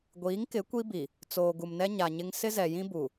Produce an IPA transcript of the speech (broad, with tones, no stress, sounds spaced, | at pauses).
ɡʷ iː˨˦ ŋ k ɪ˨˦ kʷ i˦ b i˨ | t͡s oː˨ ɡ u˨ m n ɛ˦ ɲ a˨ ɲ ɪ˦ ŋ s ɪ˦ z ɛ˨ j ĩ˦ b u˨